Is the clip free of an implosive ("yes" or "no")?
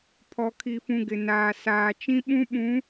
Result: no